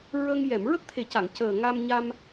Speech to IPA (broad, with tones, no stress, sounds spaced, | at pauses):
ɹ ə˧ ŋ j ɛ˨˩˨ m ɹ ə˦˥ k̚ t̪ʰ e˨˩ c a˨˩˨ ŋ c əː˨˩ ŋ a˧ m ɲ a˧ m